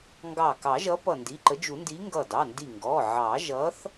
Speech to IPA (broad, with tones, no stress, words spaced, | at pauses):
ŋɡɑ˧˩ kɑ˨˩˦ʒʌ˨˥pʌ˧˩ ndi˩˧˩ǃə˨˥d͡ʒu˨˩˦ndi˨˥ ŋɡʌ˧˩dɑ˩˧˩ndi˧˩ŋɡɔ˩˧˩ ʕɑ˨˩˦ʒʌ˨˥θ